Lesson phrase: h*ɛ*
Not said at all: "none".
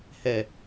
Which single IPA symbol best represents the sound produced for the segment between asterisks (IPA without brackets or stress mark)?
ɛ